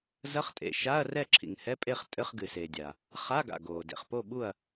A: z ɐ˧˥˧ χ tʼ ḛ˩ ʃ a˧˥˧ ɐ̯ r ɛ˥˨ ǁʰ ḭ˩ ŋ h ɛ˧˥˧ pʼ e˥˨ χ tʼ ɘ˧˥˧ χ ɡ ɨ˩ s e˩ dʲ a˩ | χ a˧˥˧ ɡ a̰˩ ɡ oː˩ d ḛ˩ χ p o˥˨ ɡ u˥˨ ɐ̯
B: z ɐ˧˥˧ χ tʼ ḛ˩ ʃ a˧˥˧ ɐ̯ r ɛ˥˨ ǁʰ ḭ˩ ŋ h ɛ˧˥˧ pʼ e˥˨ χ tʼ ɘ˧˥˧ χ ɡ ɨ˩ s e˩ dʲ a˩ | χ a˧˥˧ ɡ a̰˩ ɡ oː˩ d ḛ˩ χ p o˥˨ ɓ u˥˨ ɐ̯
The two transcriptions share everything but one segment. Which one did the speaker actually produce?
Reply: B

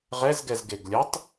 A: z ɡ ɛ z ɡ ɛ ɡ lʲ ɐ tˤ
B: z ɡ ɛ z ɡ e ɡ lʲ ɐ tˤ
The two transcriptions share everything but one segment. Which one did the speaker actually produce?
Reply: B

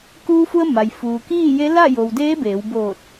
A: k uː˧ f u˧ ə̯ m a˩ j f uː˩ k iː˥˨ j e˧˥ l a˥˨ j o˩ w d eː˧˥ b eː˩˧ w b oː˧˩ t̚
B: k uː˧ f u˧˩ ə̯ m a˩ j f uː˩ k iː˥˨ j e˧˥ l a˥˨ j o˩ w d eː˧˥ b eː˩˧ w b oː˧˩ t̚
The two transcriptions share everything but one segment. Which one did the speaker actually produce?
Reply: A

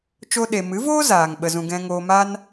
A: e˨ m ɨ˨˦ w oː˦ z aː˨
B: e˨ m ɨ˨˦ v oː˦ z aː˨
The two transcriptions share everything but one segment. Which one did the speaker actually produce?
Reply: B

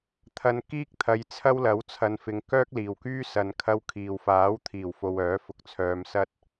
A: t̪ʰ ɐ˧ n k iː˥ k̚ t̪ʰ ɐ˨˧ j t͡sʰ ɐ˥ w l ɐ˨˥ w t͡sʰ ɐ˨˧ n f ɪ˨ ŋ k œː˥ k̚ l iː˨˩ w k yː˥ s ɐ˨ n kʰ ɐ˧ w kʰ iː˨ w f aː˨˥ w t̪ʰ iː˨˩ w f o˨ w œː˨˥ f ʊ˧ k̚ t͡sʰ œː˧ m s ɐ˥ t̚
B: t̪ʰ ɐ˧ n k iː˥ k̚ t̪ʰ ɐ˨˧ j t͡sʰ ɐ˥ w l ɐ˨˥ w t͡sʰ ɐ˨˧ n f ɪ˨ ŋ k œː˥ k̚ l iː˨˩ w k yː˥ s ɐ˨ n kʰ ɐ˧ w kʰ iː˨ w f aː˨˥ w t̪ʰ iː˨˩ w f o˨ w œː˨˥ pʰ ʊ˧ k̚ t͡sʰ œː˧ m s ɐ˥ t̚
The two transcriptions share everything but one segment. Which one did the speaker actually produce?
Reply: A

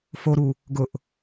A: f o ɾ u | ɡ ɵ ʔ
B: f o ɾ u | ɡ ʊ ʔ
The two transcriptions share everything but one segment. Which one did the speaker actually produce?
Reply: B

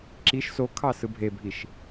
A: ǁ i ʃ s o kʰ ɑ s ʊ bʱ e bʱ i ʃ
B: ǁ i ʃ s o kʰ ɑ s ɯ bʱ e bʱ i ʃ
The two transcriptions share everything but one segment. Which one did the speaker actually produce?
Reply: B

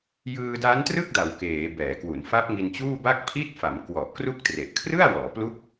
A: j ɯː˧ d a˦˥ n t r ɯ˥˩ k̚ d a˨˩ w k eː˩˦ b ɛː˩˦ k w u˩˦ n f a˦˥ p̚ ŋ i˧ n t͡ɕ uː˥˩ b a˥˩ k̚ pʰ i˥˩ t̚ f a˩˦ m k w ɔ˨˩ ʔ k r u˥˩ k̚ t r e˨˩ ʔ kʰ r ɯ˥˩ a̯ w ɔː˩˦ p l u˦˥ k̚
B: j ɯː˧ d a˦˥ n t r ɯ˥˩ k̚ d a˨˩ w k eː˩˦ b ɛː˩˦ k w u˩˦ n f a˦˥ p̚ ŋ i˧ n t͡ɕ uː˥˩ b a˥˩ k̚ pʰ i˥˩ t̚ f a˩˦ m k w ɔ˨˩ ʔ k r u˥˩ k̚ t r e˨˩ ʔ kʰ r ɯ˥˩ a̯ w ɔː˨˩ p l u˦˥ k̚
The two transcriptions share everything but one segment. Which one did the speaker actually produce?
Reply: A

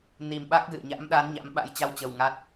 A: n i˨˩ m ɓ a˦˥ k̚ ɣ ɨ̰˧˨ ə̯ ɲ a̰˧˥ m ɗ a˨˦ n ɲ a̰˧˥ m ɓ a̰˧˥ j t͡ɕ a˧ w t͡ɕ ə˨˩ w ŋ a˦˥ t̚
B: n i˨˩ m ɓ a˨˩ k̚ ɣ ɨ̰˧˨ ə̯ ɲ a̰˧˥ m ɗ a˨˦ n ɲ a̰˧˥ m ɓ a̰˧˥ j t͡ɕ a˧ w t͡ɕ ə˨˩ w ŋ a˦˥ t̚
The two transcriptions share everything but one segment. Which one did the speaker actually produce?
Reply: A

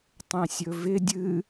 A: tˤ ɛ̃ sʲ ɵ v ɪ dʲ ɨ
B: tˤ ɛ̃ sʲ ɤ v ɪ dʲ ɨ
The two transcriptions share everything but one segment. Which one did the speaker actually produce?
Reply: A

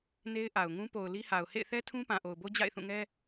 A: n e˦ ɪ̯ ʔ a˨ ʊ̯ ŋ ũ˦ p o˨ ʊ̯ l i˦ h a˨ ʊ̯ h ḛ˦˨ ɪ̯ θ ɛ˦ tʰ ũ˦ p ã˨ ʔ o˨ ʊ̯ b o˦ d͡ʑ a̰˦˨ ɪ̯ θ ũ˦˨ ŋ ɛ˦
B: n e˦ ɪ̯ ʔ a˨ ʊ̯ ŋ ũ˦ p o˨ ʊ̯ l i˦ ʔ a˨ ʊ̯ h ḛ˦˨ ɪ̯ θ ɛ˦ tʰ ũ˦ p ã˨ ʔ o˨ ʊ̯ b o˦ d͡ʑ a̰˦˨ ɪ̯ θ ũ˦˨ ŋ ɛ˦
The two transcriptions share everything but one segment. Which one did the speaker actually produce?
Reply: A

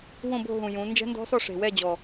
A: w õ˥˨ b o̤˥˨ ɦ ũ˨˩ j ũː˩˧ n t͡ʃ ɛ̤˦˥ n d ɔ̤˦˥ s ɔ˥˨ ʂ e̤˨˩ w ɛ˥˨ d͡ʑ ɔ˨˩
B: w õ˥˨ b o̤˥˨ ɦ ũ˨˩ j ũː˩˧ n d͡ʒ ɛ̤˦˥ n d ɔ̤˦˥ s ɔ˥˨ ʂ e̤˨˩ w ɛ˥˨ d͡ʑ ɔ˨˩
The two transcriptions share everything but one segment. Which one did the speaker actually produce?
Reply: B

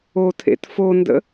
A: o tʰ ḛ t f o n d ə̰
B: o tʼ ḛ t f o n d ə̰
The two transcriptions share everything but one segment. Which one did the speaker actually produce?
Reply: A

